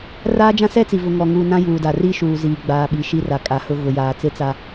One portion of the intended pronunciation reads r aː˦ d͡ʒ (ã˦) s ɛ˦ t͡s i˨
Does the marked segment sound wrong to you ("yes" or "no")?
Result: no